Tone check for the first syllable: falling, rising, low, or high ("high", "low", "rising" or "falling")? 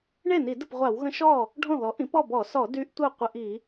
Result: falling